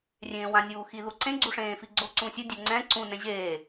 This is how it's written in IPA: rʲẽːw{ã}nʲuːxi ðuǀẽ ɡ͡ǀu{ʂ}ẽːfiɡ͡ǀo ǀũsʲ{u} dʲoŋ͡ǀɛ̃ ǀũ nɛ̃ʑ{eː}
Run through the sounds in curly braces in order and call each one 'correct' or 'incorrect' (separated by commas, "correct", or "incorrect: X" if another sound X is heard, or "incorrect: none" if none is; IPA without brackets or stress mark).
correct, correct, incorrect: ɯ, correct